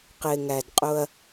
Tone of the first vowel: low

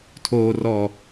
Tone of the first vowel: low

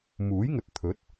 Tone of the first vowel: rising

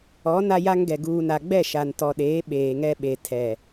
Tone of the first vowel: rising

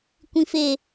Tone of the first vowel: low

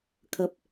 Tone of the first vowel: low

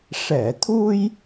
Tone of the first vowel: low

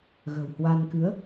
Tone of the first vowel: low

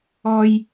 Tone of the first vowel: high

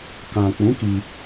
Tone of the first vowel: low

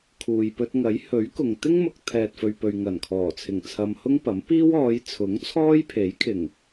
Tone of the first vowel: low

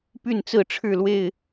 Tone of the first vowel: falling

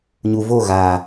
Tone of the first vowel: low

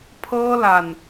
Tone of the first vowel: high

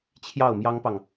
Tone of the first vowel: falling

